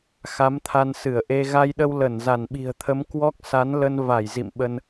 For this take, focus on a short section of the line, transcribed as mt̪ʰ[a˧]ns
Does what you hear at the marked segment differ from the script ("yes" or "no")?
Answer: no